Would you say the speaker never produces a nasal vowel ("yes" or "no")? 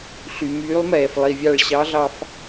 yes